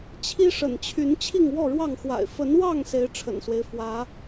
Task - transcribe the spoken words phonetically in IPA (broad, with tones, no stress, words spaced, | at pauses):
t͡ɕʰi˦ʂə̰˨˩nt͡ɕʰy˨˦n t͡ɕʰi˥˨ŋwɔ˥˨ɻwɑ˥˨ŋxwa̰˨˩ɪ̯ fə˨˦nwɑ˥˨ŋ se˨˦ɪ̯ ʈ͡ʂʰə̰˨˩nswe˦ɪ̯ fwä˨˦